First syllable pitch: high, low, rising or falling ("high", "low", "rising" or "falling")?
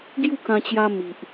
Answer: falling